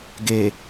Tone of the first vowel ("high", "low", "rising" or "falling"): low